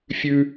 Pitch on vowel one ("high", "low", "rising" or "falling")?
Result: high